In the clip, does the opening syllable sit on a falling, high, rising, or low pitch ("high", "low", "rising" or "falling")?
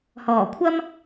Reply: low